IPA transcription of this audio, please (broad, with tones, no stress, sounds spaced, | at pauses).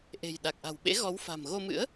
ʔ e̤˨˩ j ɗ a˨˩ k̚ ʔ a̤˨˩ w ɓ ḛ˧˥ ɣ ɔ˨˦ w f a̤˨˩ m ɣ o˧ m ɨ̰˧˥ ə̯